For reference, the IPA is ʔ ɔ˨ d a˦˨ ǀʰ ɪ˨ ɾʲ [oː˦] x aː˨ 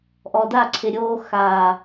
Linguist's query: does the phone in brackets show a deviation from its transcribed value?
no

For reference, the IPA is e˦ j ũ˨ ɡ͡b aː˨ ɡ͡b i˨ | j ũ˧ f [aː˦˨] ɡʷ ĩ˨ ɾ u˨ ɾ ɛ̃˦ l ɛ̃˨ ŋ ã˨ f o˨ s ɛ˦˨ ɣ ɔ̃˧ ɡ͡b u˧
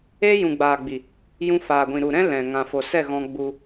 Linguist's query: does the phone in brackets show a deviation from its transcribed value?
yes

